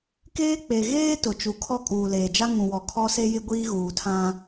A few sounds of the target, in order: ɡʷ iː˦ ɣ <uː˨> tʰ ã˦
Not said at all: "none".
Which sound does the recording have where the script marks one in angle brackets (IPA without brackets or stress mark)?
uː˨